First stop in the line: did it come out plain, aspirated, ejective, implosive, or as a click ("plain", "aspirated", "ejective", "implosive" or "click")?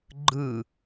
click